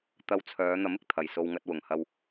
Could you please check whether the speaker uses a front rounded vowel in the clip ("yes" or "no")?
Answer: yes